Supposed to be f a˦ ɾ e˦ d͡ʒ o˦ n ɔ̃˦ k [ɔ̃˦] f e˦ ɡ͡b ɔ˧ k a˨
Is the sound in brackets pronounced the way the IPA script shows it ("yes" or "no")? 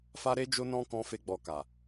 yes